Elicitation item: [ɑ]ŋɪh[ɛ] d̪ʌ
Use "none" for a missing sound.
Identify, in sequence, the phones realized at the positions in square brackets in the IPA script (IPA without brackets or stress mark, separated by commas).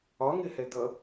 ɒ, ɛ